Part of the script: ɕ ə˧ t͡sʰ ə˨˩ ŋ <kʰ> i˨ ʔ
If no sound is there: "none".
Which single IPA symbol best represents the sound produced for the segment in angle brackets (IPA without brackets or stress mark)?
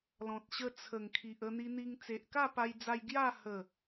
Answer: kʰ